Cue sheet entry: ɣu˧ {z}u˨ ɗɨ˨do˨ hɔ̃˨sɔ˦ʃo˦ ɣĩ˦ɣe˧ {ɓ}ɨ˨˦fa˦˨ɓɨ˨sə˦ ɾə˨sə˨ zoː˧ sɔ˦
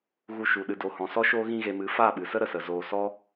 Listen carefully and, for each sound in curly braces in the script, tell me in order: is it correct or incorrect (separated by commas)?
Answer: incorrect, incorrect